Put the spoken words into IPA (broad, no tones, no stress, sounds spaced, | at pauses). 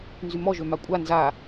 n z y m ɔ ʒ ø m a kʷʼ a n z a